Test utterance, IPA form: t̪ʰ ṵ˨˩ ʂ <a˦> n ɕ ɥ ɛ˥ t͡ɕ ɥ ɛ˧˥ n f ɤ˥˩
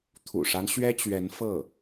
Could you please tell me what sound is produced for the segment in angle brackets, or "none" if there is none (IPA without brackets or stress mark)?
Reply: a˦